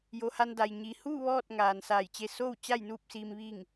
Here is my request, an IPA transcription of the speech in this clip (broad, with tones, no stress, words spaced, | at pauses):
jo˩˧ha˧nda˩j ɲi˩huː˥˨ ʋɔː˥˨t̚ŋaː˩n saː˧˩jt͡ɕe˧ soː˥˨w t͡ɕa˥˨jnuː˥˨p̚siː˧m ʋi˥˨ŋ